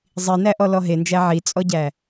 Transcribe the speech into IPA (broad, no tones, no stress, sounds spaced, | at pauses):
zˤ i n æ ʔ ɔ l ɔ ɦ e n d͡ʒ æ ʕ i t͡sʼ ɔ ɟ æ